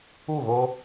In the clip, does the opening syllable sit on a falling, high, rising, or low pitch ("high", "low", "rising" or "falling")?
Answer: falling